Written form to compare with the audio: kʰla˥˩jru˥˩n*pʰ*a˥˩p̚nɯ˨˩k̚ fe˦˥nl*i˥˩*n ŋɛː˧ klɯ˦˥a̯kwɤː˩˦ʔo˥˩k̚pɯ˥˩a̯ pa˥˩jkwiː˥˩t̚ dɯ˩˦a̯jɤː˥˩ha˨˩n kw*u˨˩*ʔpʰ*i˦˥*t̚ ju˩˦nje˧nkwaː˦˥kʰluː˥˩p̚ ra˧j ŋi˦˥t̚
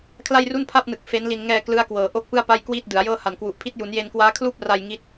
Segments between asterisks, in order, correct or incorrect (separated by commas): correct, incorrect, correct, correct